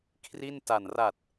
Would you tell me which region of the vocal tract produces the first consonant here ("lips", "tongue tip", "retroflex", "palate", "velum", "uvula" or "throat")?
velum